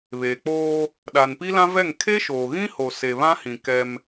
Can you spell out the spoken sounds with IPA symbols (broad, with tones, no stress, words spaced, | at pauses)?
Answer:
βeː˨k͡poː˦ | ɗa˨npi˦lã˦vɛ˦˨ŋ kʰe˦ʃoː˨ɣĩ˦ho˨ se˨βã˦hĩ˨ kɛ˦m